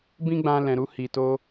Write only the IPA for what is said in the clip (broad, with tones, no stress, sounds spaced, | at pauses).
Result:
b ĩ˦ ɡ͡b ã˧ l ɛ̃˨ ɾ u˧ h i˨ t o˧